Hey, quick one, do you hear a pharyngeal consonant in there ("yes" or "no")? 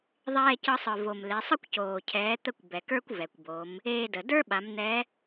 no